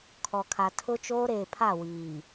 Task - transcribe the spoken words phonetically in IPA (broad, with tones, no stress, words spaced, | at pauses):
kʰɔ˨kʰa˨ tʰʊ˦t͡ʃoː˦ɾeː˨pʰa˦˨ wiː˨